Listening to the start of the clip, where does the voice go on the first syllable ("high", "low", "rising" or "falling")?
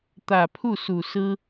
low